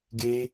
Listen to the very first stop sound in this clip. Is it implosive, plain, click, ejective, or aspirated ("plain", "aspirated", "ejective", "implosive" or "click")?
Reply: plain